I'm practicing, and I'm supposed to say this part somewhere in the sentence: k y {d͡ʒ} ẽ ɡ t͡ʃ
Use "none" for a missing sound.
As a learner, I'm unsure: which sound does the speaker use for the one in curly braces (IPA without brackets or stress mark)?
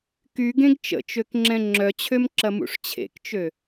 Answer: ɡ